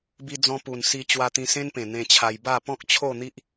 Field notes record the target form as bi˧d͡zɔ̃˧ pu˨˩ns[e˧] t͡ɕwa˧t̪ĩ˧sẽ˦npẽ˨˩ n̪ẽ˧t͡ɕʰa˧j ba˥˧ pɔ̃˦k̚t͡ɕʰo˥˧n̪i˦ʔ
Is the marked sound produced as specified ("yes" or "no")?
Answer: no